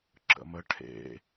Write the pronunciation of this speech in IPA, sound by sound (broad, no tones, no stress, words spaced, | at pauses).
ǁə̰mə ʈʰḛ